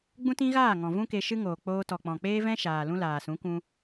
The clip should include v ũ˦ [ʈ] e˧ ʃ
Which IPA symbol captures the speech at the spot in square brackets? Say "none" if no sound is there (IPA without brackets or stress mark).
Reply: k